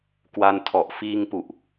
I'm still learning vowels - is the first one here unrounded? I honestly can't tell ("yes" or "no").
yes